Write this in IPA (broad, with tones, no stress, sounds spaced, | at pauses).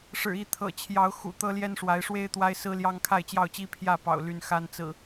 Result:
ʂ ɻ̩˨˩ i˥˨ t̪ʰ ɤ̰˨˩ t͡ɕʰ j ɑ˨˦ ʊ̯ x ṵ˨˩ t̪ ɤ˦ l j ɛ˦ n ʂ w a˨˦ ɪ̯ ʂ w e˦ ɪ̯ t̪ w a˦ ɪ̯ s ɹ̩˦ l j ɑ˦ ŋ kʰ a˥˨ ɪ̯ t͡ɕ j ɑ˥˨ ʊ̯ t͡ɕ i˦ pʰ j ä˥˨ p ɑ̰˨˩ ʊ̯ l y˦ n x a˦ n t͡s ɹ̩˨˩